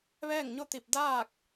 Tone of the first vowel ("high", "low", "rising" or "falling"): falling